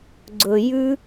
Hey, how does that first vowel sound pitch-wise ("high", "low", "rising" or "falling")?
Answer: low